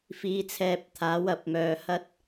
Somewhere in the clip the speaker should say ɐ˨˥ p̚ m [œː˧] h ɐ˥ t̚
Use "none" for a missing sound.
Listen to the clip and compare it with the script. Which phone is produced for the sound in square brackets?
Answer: œː˧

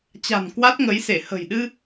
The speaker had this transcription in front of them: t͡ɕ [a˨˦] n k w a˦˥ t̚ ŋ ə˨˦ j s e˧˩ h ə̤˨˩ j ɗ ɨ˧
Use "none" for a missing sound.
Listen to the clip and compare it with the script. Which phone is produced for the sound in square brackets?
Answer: a̤˨˩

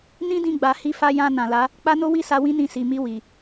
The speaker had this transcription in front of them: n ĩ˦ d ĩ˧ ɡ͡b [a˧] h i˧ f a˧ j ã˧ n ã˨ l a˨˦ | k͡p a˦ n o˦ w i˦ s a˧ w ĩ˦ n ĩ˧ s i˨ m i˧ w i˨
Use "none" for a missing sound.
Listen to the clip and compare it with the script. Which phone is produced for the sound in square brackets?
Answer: a˨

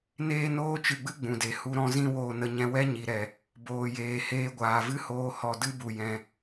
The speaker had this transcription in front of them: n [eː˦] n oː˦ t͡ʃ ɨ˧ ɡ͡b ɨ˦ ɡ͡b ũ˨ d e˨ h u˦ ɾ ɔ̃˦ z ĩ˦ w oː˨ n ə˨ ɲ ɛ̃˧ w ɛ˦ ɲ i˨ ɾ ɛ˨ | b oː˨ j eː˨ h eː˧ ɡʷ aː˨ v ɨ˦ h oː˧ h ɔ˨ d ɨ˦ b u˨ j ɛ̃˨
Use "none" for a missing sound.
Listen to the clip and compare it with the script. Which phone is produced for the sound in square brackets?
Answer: eː˦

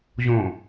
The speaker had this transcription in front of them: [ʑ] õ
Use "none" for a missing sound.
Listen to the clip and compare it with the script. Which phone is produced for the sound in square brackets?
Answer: ʑ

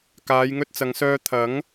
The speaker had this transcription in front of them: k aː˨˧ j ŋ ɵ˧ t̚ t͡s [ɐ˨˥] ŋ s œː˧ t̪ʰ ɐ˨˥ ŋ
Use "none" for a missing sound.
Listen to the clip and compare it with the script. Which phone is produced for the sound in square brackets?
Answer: ɐ˨˧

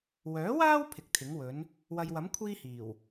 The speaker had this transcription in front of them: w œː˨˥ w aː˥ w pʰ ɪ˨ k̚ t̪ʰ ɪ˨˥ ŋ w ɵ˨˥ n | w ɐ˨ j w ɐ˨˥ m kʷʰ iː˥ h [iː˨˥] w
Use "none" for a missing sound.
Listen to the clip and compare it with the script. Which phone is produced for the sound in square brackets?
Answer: iː˨˩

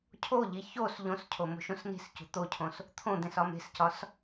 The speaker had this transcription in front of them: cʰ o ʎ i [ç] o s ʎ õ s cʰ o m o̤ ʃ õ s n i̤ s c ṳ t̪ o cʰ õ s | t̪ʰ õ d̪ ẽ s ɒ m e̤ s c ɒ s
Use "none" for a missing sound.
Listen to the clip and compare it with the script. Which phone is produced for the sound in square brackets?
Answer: ç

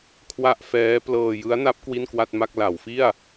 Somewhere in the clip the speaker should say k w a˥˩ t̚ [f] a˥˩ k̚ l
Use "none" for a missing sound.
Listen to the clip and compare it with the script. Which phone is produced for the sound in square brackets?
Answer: m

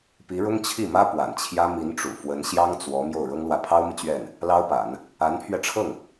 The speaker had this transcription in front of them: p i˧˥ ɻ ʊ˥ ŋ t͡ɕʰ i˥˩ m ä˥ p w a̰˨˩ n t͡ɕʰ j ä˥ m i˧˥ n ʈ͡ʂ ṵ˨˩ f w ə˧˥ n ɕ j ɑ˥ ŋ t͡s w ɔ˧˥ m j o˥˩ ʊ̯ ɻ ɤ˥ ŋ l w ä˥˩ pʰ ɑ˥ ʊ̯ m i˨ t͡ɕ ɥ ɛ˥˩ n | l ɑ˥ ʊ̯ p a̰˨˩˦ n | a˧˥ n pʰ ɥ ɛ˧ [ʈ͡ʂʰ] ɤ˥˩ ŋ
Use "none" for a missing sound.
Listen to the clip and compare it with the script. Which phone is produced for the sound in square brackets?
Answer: ʈ͡ʂʰ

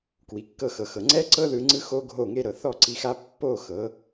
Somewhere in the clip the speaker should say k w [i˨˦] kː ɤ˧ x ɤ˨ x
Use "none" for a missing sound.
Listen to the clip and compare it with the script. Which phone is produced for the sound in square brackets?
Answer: i˨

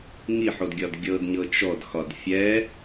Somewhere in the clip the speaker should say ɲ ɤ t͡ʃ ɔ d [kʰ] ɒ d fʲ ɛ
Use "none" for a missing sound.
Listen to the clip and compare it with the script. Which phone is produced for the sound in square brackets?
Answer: x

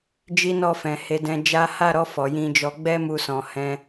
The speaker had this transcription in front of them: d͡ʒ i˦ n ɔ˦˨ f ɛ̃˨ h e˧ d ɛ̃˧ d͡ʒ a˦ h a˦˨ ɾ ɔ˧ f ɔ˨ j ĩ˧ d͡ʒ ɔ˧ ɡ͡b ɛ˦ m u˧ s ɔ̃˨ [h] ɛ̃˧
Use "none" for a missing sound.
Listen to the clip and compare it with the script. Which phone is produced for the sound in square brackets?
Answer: h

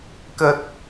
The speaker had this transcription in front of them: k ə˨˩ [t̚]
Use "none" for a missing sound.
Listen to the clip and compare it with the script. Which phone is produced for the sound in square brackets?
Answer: t̚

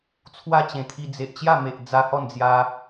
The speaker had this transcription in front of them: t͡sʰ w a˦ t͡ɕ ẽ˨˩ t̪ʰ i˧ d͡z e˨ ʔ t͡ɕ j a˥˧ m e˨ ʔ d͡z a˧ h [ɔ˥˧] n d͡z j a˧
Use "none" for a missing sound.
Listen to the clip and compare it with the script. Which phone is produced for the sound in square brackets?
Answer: ɔ˥˧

